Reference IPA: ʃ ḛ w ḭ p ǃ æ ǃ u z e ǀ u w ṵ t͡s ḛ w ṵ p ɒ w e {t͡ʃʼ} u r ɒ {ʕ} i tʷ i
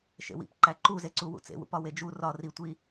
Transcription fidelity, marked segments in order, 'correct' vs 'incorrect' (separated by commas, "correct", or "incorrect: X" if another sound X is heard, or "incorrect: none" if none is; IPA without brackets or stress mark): incorrect: d͡ʒ, incorrect: r